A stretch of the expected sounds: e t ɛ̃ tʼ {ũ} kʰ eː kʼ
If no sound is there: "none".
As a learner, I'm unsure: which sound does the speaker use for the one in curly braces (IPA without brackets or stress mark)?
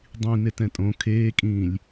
õ